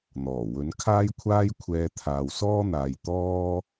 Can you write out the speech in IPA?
n̪ ɔː˨˩ w ɵ˨˥ n kʰ aː˥ j kʷʰ aː˥ j kʷʰ ɛː˧ t̪ʰ aː˨ w s ɔː˥ n̪ aː˨ j t̪ ɔː˥

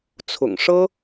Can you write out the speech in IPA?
t͡sʰ ʊ̰˨˩ ŋ ʂ ɤ˥

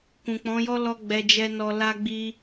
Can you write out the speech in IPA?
k ũ˨ k͡p ɔ̃˨˦ j ɔ˦ l ɔ˧ ɡ͡b ɛ˨ d͡ʒ ɛ˨ n ɔ˨ l a˧ ɡ͡b i˧

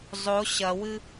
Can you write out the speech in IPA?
zˤ o ɕ ɐ w ɨ

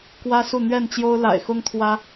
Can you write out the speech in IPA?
k w ä˦ s u˥˨ n̪ ɥ ɛ˥˨ n t͡ɕ j o˦ ʊ̯ l a̰˨˩ ɪ̯ x ʊ˦ ŋ t̪ʰ w ä˦

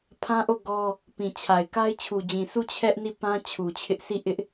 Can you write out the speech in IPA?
pʰ ã˦ ʔ o˦˨ ɡ ɔ˦ | p ĩ˨ t͡ɕʰ a˨ ɪ̯ k a˦ ɪ̯ t͡ɕʰ u˨ d͡ʑ ĩ˨ sʰ u˦˨ t͡ɕʰ ɛ˦ ʔ n i˦˨ p ã˦ t͡ɕʰ u˨ t͡ɕʰ ɪ˦ ʔ s i˦˨ ʔ ɪ˦ ʔ

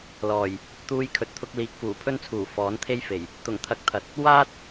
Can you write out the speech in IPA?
l ɔː˨˩ j | t̪ uː˧ j kʰ ɵ˨˥ t̚ t̪ʰ ʊ˧ k̚ l iː˨ k̚ f uː˨˩ pʰ ɵ˥ n t͡sʰ uː˨˩ f ɔː˨˥ n t̪ʰ e˥ j f e˨˩ j | t̪ ʊ˨˩ ŋ t̪ʰ ɐ˧ k̚ t̪ʰ ɐ˨˥ t̚ | w aː˥ t̚

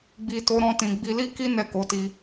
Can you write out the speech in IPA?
ɡ͡b i˨ t o˨˦ ɾ ɔ̃˧ t ĩ˨ ɡ͡b i˧ l i˦ k i˦ n ɛ˦˨ k o˨˦ t i˧

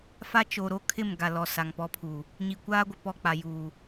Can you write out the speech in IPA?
f a˦ t͡ʃ o˨ ɾ o˦ kʰ ɪ˦˨ m ɡ a˨ l ɔ˨ s a˨ ŋ p ɔ˦ pʰ uː˨ | ɲ i˨ kʷ aː˦ ɡʷ ɪ˨ p ɔ˦˨ k͡p a˨ j uː˨

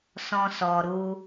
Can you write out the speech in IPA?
s ɔ̃˦ s ɔ˧ ɾ u˦

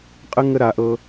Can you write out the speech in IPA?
qʼ ə˦ ŋ ə˦ ɾ a˨˥ ʔ ɤ˦

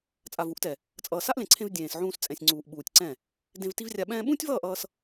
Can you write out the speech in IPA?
t͡sʼ a˨ v u˨˦ ʔ t ɛ˨ | t͡sʼ ʌː˨ s a˦ ʔ l ẽ˨ ǀʰ ẽ˧ v dʲ ẽː˨ s ʕ ũː˧ s t͡sʼ ɛ̃˨ sʲ ŋ͡ǀ uː˨ ʔ ɓ uː˨ tʲ ǀ ɛ̃˦˨ | d ẽ˧ v t i˦ v rʲ a˧ ɓ ɛ̃ː˧ ɓ ũː˦ tʲ v ʌː˦˨ ʔ ʌː˧ s

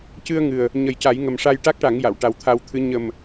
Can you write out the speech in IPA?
c ɨ˧ ə̯ ŋ ɨ˨˩ ə̯ | ɲ ə˨˩˦ j c a˨˩˦ j ŋ ə˨˩ m ʂ a˧ j ʈ a˦˥ k̚ ʈ a˨˩˦ ŋ j a˨˩˨ w ʈ a˨˩ w t̪ʰ a˧ w t̪ʰ ɨ˧˥ ɲ ə˨˩ m

